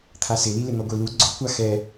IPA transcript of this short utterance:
t̪ʰasɪlilɪ n̪ɔɡʷelu ɡ͡ǀʊkʷa xɛ

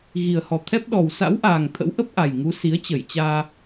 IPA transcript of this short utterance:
ɣi˨˩ə̯hɔ˨˩t̪ʰɛ˦˥p̚ ɗɔ˨˩wsa̰˧˥wʔaː˨˩ŋ t̪ʰə̰˧˥wʔə˦˥p̚ʔa˨˩jŋu˨˦ si˨˦ə̯t͡ɕə˧˩jt͡ɕaː˧

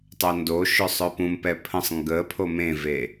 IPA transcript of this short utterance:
tˤœndoʃœsˤ œpũmpɛ pʰə̃sˤ ŋɡəpʰo mẽve

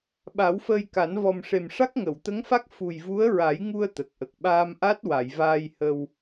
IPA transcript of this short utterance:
ɓa˨˩˦wfəː˧jka˨˩˦n vɔ˨˩mʂe˨˩m ʂa˦˥k̚ŋə˨˩˨wt̪ə˧˥ŋfa˦˥k̚ fu˨˩jvu˧˥ə̯ɹa˨˩˦jŋu˧ə̯ t̪ə˨˩k̚ʔə˨˩k̚ ɓaː˧mʔa˦˥t̚wa˨˩˨j vaː˧jhə˧w

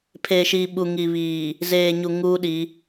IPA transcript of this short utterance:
pʰe˨ʃiː˨ɓu˨ ŋi˨βiː˨ | zeː˨ɲu˨ ŋuː˦ɗi˨˦

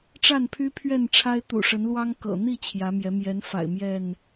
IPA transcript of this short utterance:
ʈ͡ʂa˥˨npʰy˦pʰɥɛ˥˨nʈ͡ʂʰa˦ɪ̯ t̪ṵ˨˩ʂə˨˦nlwɑ˦ŋ kɤ̰˨˩n̪i˥˨ t͡ɕʰjä˨˦mjɛ˨˦ mjɛ˨˦nfa̰˨˩ɪ̯ mjɛ˥˨n

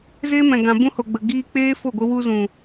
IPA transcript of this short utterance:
zeː˦mɛ̃˨ɡã˨ bũ˦ho˨ɡ͡bə˨ ɡiː˧k͡peː˦fo˦˨ɡʷə˧ wu˧zũ˨

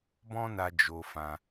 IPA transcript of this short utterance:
bɔ̃˦na˧ d͡ʒo˧fã˧

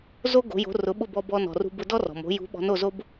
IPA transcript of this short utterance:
zo˥ɡo̤˩˥jo̤˩˥ rʊ˩˥ɓʊ˥˩bɔ˧bɔ˧ nɔ̤˩rṳ˧ bʊ˧dɔ˥rɔ̤˩mo̤˩˥ jṳ˩˥ɓɔ̤˩˥n o˥˩zo˥b

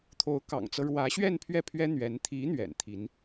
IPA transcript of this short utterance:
t̪ʰo˧˥ʊ̯kɑ̰˨˩ŋt͡sɤ˦ ɻwä˧˥ɕɥɛ˥˧n pʰɥɛ˥˩pʰɥɛ˥ n̪ɥɛ˧˥n t̪ʰi˧˥ n̪ɥɛ̰˨˩nt̪ʰi˧˥n

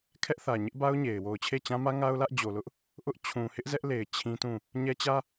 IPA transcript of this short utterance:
kʰɛ˦ʔθä˨ ɲɪ˦ʔba˦ʊ̯ ɲe˨ɪ̯ wo˨ʊ̯t͡ɕʰe˦˨t͡ɕã˦mä˦ ŋa˦ʊ̯lä˦ʔd͡ʑo˨lʊ˦ʔ | ʔʊ˦ʔ t͡ɕʰũ˨hɪ˦ʔ zɛ˦ʔle˨ɪ̯ t͡ɕʰĩ˦tũ˦˨ | ɲɛ˦t͡ɕä˦

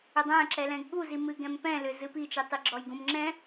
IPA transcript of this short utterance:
ʏdˤæ̃ ǁɛlɛ̃ɡɠuzi mɨɡɛ̃mpɛ̃lʏ zɨpit͡ʃitˤi ɡ͡ǁɔjɡũmŋ͡ǁɛ̃

